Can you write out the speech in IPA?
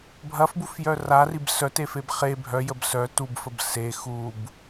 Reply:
bʱɐfbufjœ rarib sœtefeb χe bʱœjəb sœ tubfəb se xub

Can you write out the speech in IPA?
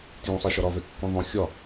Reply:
tjũsˤe ʃɒɾɒvɛ kːõðˤõ xʲɒ

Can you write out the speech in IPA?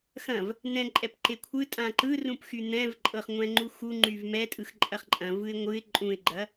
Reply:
xɐ̃v | nɛ̃ǃʼɛpǃe kʷʰɯtʼã ǃɯrũpxy n̪ɛ̃vǃʼɤχŋʷɛ̃ ŋ͡ǃuxu ŋ͡ǃyvmɛtʼɯx ǃʼɐχǃʼɐ̃vɯɪ̯ ŋʷɯɪ̯ ǃʼũɪ̯ɡ͡ǃɐ

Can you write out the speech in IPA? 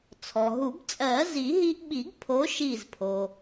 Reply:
t͡sʰɔ˩ɦu˨˩˦b t͡sʼɜ˨˩˦zi˨˩˦ɦi˧ʔɓi˨˩˦ɡ pʰo˨˥ʃi˧˩zpʰo˩

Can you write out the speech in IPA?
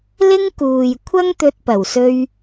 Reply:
lɪ˥ŋ kuː˨j kʷʰɐ˥ŋt̪ɵ˧t̚ pɐ˨˩wsɵ˧ɥ

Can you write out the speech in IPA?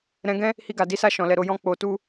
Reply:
ɾɛ̃˧ɡɛ̃˦ | hi˧ɡa˨di˨˦sa˦˨ ʃɔ̃˨lɛ˨ɾo˧jɔ̃˦ k͡po˧tu˦

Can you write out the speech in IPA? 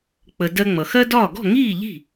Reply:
k͡pə˩ dɜ˧ŋ͡mʌ˩xɜ˥dɒː˥˩ ɡɔ̤˥˩ŋiː˥˩ ʎi̤˥˩

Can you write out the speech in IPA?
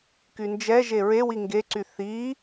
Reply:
kynd͡ʒɛʒe ɹewi ŋɡeǀy θi

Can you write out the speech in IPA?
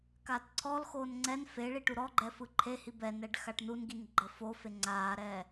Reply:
kaːtǀʰɔlxoːn ŋ͡ǀɛn feɭi ʈuɾɔɡ͡ǃɛ fɯǃʰehi bɛnɛɖ xaʈnunɡin ɡ͡ǃɤfofe ŋ͡ǀaːɾɛː

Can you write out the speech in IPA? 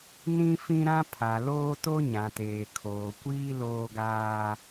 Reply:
nĩ˦fĩ˦ɾã˦ pʰa˨loː˦to˦ ɲã˨teː˨ kʰoː˨kʷiː˦ loː˦ɡaː˦

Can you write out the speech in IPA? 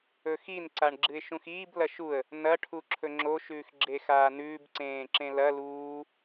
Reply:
ɵxin ǀaɳɡ͡ǁɨɪ̯ʃũxiːb lɐʃuə̯ | nɐ ʈʰuǁʰɵŋ͡ǁo ʃʉːxɡ͡ǁexaːnʉːb ǀẽːǁẽlɐ luː

